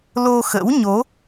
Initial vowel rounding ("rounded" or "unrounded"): rounded